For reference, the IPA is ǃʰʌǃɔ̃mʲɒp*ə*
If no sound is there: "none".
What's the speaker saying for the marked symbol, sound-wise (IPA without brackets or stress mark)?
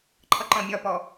ɔ